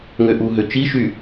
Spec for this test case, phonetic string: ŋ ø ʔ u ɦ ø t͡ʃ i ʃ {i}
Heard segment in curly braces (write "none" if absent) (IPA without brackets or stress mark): y